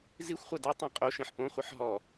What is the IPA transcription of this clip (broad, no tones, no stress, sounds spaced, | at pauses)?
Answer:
z i xʷ χʷ a d ɛ tˤ ĩ qʼ o ʃ ĩ ħ p õ χʷ ɨ ħ ɦ ɔ